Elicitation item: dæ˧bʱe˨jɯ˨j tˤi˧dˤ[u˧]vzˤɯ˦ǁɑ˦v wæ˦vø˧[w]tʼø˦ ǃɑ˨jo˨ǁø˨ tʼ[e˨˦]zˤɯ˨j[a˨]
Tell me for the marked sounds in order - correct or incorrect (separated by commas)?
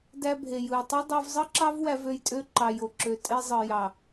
incorrect, incorrect, incorrect, incorrect